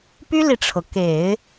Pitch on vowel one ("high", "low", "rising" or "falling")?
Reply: high